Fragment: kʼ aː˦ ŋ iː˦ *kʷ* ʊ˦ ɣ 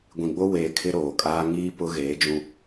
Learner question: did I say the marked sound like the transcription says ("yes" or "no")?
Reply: no